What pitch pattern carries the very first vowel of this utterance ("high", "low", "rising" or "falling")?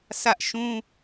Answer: high